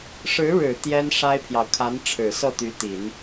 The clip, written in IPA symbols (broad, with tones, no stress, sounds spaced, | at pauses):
ʂ ɻ̩˧˥ ɻ ɻ̩˨˩ t̪ j ɛ˥ n ʂ a˥ ɪ̯ pʰ j ɑ˨ ʊ̯ kʰ a˧˥ n ʈ͡ʂʰ ɻ̩˨˩ s ɤ˥˩ t̪ y˧˥ t̪ i˨˩˦ n